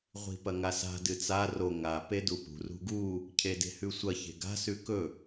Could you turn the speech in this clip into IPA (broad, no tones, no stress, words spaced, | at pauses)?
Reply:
ʁʷi̤pɐŋasa̤ dɨt͡sa ro ŋa pedupṳ rṳɡu | cʰede̤hʉsʷɐ çe̤ɡa̤ sʉkɵ